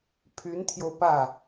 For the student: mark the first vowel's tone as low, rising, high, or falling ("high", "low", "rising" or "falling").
rising